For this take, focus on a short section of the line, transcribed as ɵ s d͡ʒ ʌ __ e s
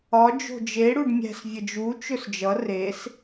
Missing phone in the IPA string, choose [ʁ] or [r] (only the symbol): r